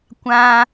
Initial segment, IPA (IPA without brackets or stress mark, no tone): kʷ